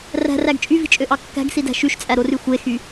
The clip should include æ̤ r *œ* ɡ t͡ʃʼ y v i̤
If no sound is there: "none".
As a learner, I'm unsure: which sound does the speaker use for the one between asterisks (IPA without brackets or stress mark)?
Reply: æ